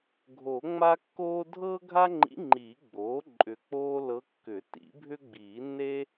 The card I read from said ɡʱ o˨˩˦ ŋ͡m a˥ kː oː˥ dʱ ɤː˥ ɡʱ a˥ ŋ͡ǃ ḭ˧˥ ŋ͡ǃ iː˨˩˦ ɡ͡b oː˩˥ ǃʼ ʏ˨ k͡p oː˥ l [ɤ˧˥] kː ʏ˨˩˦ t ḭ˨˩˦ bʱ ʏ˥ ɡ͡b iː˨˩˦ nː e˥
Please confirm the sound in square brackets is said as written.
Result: yes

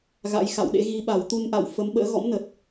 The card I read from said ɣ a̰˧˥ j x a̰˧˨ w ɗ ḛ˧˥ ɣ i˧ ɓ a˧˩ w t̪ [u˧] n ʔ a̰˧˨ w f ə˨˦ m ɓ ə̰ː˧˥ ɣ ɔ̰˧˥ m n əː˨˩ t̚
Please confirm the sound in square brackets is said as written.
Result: yes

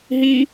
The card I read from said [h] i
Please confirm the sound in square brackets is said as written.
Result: no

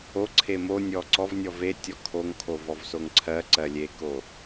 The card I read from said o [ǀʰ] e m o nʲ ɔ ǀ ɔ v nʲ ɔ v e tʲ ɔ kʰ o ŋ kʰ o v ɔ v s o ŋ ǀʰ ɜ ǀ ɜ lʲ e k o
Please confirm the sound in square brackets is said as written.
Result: yes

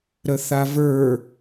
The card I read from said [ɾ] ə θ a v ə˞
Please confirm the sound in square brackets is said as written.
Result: yes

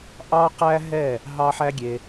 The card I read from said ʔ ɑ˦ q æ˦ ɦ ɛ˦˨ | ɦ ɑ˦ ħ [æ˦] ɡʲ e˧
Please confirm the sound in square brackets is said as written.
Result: yes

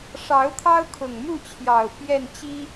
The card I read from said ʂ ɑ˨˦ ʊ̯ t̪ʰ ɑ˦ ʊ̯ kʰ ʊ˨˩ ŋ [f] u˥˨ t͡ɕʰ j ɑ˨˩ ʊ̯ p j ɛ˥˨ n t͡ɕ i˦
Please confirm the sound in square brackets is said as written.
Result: no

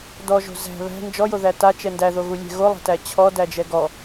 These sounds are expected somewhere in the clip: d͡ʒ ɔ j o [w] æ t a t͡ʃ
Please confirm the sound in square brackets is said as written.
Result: no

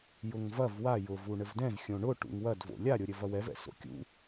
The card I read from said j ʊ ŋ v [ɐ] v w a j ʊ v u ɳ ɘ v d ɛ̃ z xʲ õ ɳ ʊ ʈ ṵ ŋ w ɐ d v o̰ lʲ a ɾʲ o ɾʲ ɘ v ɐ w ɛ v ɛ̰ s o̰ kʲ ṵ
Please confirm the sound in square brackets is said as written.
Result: yes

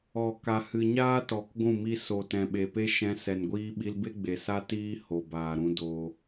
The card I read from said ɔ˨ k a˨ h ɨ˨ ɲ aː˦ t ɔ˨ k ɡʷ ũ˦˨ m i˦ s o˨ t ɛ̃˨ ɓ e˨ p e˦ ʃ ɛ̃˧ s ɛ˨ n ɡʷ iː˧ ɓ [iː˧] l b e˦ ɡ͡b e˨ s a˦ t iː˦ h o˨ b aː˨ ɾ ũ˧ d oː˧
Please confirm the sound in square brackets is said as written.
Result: no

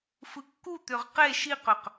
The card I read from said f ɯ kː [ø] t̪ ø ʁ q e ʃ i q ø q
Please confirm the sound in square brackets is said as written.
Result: no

